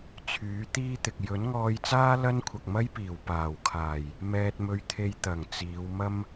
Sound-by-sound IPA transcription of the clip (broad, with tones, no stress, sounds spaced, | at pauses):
t͡sʰ yː˨˥ t̪ iː˥ t̪ ɪ˨ k̚ j ɵ˨˥ n ŋ ɔː˧ j t͡s aː˥ l ɐ˥ n kʷʰ ɐ˨ k̚ m ɐ˥ j p iː˨˩ w p aː˨˩ w kʰ aː˨˩ j | m ɛː˧ t̚ m ɵ˧ ɥ t̪ʰ e˧ j t̪ ɐ˨˩ ŋ t͡s iː˨˧ w m ɐ˧ m